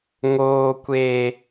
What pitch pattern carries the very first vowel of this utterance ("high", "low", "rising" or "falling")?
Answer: high